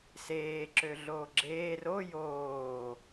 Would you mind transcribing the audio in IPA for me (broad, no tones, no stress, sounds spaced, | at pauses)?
s eː ǁ ø ɮ oː ɡ͡ǁ eː r o j oː